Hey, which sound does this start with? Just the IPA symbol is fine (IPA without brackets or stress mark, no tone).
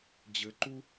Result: d͡ʑ